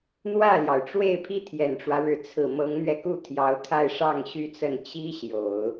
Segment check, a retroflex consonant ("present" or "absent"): present